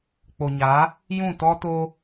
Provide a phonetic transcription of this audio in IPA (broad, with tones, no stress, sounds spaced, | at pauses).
k͡p o˨ ɲ a˨˦ | j ũ˦˨ t ɔ˦ t o˦